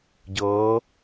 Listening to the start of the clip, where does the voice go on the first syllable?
rising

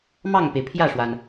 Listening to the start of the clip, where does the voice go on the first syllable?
falling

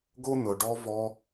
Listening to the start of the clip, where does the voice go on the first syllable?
high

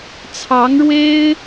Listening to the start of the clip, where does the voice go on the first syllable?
rising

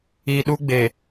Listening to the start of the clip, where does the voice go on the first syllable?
low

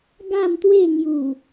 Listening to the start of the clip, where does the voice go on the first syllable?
falling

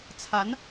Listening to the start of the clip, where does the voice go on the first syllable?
rising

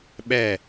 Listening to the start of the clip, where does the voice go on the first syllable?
falling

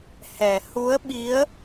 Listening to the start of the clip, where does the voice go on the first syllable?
low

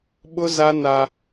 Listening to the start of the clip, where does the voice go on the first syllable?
high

